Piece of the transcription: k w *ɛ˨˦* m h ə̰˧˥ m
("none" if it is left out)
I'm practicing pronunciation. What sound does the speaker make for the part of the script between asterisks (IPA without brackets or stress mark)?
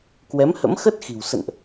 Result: ɛ˨˦